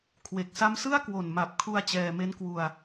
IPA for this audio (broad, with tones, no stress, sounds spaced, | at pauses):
kʰ w e˨˩ k̚ s a˦˥ m s ɯ˥˩ a̯ k w o˨˩ n m a˨˩ p̚ kʰ u˧ a̯ t͡ɕ ɛː˧ m e˦˥ n k w u˧ a̯